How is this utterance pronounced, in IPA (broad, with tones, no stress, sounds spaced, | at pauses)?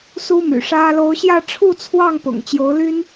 s u˥ m y̰˨˩ ʂ ä˥ l o˧˥ ʊ̯ ɕ j ä˥˧ ʈ͡ʂʰ u˥˧ t͡sʰ w ɑ˥˩ ŋ p ʊ̰˨˩ ŋ t͡ɕ j o˧˥ ʊ̯ l y˥ n